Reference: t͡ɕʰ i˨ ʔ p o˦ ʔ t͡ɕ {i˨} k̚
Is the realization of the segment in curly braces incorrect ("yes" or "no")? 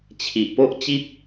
yes